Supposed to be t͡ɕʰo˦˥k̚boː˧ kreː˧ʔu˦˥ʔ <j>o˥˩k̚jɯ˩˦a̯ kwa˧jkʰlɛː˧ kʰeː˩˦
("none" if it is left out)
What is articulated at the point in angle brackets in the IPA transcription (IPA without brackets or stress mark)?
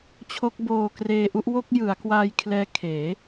w